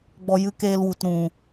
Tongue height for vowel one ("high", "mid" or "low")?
mid